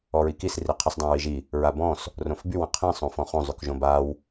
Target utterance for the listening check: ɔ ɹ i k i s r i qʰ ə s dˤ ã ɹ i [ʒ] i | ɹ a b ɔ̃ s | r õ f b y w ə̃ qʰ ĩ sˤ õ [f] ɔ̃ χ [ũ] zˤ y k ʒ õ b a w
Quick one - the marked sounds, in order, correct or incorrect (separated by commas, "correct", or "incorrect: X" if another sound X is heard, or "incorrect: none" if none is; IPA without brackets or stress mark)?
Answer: correct, correct, incorrect: õ